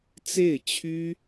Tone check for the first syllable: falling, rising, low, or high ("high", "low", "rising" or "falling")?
falling